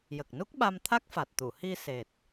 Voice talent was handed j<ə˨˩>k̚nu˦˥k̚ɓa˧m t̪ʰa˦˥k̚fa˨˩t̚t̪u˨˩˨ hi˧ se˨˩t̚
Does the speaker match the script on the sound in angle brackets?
yes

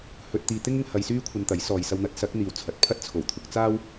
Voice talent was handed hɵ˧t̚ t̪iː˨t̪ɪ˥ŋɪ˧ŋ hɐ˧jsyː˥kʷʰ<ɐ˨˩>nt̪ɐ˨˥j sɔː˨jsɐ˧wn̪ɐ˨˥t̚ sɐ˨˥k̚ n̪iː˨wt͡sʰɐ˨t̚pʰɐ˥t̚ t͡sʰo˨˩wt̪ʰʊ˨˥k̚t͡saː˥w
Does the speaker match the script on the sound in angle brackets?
no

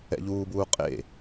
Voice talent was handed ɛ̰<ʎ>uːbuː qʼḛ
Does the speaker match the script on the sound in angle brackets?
yes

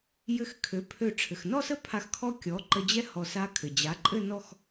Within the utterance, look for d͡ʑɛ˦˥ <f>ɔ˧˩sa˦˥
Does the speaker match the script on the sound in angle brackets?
no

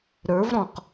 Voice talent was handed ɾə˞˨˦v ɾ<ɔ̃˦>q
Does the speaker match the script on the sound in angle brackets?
no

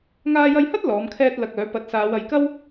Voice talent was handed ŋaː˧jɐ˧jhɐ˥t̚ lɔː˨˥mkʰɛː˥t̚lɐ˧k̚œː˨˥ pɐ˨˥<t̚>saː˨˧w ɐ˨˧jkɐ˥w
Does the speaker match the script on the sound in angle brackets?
yes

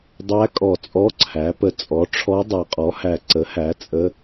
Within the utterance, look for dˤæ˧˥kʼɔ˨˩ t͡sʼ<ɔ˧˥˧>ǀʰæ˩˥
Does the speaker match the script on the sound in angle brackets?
yes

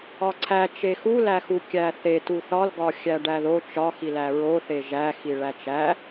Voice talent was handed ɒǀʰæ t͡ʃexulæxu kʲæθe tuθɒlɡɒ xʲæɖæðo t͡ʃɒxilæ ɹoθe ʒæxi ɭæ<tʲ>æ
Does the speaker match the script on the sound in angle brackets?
no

